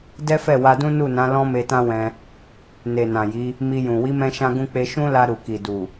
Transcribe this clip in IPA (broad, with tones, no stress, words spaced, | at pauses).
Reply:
dɛ˦fɛ˦˨wa˧dũ˦ nu˦˨nã˨˦ lɔ̃˦me˧tã˦wɛ̃˧ | ne˨nã˨ji˨˦ | mi˧jũ˨ wi˨˦mɛ̃˧ʃã˧ɡũ˧ k͡pe˧ʃũ˦la˧ ɾu˨ki˨ du˨